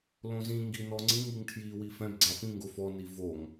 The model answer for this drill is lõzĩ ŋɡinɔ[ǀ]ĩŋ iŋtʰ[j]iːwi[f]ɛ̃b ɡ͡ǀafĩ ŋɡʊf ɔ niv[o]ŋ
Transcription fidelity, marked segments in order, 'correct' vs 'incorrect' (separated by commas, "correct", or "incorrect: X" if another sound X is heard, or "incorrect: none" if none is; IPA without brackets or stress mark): incorrect: ŋ͡ǀ, correct, correct, correct